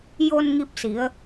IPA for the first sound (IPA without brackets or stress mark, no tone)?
j